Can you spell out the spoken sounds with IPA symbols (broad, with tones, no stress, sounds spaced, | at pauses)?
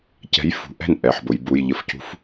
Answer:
c ɛ̤˨˥ j f ṳ˩˧ ʔ ɛ̤˥˩ n ʔ ɛ˩˧ ħ b ʊ˩˧ j b u˩˧˩ j ʎ ə˨˥ f c ṳ˦˥ f